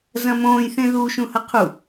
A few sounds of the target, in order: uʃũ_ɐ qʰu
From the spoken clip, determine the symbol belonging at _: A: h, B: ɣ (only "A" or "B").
A